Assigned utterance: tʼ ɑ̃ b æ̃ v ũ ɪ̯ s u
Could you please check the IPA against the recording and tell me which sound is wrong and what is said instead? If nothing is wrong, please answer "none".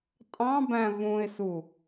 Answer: none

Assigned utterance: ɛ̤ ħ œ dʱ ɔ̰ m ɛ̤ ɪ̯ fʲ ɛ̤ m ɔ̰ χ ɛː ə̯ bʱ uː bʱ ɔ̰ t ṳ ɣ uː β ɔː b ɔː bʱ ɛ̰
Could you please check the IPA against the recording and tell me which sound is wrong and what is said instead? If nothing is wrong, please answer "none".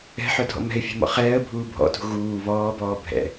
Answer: none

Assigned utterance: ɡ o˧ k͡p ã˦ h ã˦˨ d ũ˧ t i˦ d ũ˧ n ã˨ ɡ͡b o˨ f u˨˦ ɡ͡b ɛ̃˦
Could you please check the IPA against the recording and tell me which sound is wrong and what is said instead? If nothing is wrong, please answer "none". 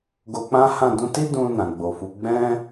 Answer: none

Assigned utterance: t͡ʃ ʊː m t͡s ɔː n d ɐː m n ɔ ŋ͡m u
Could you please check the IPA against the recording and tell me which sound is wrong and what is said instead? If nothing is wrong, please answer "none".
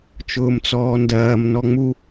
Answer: none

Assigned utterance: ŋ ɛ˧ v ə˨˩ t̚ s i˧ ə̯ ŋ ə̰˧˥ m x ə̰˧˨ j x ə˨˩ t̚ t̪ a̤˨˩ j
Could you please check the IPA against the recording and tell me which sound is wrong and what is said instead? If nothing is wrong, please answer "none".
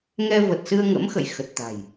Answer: i˧ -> ɨ˧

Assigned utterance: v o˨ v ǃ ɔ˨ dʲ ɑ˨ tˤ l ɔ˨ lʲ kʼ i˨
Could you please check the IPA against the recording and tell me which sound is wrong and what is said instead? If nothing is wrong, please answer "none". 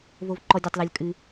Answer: i˨ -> ɨ˨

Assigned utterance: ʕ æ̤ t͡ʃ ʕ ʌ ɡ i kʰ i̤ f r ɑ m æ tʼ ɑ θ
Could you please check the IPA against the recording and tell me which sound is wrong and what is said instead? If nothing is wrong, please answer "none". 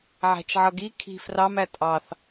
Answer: none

